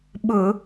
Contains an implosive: yes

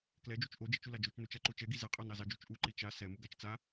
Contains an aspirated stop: no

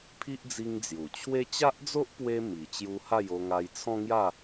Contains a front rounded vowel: no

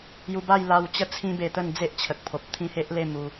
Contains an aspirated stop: yes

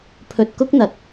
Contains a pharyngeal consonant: no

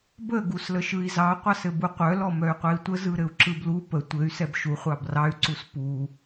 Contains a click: yes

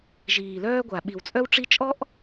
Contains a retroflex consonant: yes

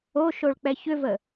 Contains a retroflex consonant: yes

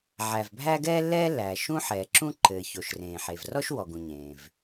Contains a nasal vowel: yes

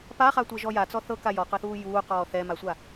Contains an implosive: no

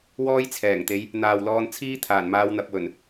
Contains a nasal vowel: no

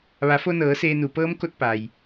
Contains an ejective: no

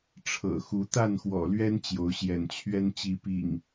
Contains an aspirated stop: yes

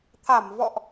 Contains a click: no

